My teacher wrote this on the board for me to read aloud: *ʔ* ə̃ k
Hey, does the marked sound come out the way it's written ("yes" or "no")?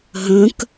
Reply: no